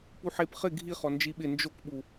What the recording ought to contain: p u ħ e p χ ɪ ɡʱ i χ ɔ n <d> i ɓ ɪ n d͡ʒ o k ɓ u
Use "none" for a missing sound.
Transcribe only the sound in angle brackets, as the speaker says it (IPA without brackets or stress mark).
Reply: d͡ʒ